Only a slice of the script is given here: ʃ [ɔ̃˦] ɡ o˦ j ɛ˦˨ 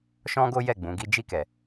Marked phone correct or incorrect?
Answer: correct